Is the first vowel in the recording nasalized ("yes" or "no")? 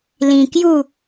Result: yes